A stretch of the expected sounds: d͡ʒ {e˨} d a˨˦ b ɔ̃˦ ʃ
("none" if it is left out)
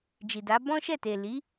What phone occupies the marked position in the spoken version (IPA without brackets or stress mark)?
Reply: i˨